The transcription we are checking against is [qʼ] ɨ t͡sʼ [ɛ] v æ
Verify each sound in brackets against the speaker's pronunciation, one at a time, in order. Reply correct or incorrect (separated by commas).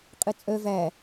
correct, incorrect